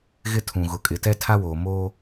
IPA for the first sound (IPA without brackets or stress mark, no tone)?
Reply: ɣ